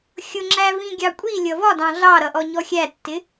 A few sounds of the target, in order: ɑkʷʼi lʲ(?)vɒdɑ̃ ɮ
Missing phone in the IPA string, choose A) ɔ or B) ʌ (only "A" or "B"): B